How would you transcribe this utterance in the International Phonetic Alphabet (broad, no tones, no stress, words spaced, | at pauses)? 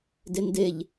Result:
dendeʎ